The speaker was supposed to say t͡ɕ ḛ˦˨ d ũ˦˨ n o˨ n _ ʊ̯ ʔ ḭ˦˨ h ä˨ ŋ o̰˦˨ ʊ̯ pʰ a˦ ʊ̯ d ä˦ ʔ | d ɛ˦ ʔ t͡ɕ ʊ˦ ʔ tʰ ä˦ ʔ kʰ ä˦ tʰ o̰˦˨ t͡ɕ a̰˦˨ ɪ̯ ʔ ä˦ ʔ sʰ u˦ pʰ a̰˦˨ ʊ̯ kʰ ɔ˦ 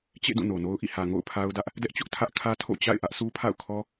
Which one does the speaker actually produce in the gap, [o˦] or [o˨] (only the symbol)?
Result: o˦